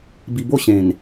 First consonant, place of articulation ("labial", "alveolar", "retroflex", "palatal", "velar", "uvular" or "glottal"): labial